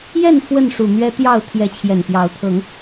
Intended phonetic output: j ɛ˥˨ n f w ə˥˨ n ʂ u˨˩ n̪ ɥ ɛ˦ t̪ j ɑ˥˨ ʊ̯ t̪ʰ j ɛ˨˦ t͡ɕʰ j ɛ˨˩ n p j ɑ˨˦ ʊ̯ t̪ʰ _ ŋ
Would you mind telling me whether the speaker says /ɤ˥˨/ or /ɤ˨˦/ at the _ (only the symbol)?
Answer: ɤ˨˦